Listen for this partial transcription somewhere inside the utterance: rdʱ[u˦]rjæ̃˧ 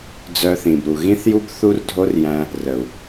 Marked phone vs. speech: incorrect: o˦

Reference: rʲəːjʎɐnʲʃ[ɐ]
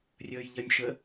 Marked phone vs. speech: incorrect: ə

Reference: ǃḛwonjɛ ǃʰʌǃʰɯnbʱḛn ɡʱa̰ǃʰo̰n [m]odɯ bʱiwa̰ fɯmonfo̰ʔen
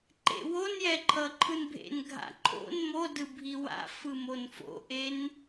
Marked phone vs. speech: correct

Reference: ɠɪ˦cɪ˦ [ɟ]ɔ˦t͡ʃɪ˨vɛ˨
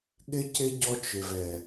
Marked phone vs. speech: correct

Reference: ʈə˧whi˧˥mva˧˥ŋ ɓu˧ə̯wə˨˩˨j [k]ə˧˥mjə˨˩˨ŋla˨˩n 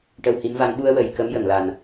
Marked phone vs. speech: correct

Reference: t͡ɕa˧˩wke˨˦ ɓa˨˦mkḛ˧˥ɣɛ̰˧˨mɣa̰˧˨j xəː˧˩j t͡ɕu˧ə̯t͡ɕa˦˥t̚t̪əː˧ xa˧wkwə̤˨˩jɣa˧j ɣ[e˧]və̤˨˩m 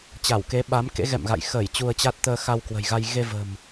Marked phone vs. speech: correct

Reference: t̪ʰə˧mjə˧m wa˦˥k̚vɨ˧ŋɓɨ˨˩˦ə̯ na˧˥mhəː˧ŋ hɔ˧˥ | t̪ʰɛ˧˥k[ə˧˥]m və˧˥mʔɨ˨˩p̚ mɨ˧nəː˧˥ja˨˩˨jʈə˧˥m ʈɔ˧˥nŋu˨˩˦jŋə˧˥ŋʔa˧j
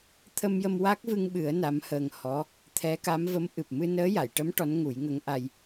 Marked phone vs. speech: incorrect: a˧˥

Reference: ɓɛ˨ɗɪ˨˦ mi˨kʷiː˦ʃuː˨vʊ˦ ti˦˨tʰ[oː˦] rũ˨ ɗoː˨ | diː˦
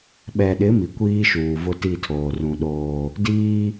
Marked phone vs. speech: incorrect: oː˨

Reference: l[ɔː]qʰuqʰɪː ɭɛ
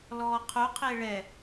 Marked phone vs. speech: correct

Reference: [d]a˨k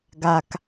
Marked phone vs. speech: incorrect: ɡ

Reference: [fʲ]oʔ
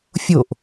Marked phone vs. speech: correct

